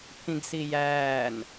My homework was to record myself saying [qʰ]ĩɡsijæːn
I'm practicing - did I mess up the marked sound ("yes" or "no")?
yes